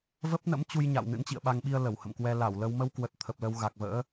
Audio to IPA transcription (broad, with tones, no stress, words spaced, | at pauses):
və˦˥p̚nə̰˧˥mt͡ɕu˧jɲa̰˧˨w nɨ̰˧˥nt͡ɕḭ˧˨ə̯ɓa˧ŋɓi˧ə̯ lə˧˩whə̰˧˨mkwɛ˧ la˧˩wlə˧w mə˧wkwə˨˩t̚ t̪ʰə˨˩p̚lə˧wɣa˨˩k̚və̰ː˧˥